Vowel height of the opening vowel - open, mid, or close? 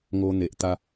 mid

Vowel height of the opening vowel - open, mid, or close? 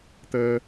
mid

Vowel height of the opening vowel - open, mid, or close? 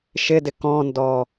close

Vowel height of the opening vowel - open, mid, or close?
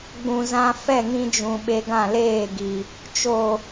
close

